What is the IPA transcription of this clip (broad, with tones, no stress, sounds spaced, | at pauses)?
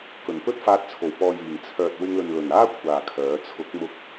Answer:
k ɵ˨˩ n p ɵ˥ t̚ f aː˧ t̚ t͡sʰ o˨˩ w p ɔː˨ j iː˨˩ ŋ t͡sʰ œː˨ t̚ w ɪ˧ ŋ l ɵ˨ n l ɵ˨˩ n aː˥ kʷʰ aː˨˩ kʰ œː˨˥ t͡sʰ ʊ˨˥ k̚ m ʊ˧ k̚